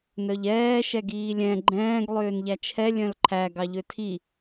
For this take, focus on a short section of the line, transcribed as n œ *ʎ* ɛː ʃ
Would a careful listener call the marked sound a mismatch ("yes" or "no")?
no